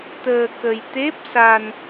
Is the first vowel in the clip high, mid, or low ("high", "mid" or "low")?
mid